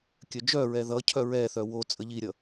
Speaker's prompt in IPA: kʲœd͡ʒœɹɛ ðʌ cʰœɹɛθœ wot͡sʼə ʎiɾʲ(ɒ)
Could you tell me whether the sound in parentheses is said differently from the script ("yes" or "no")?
yes